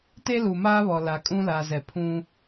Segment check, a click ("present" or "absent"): absent